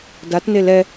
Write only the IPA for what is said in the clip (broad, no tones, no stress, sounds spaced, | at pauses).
d a t n e l ɛ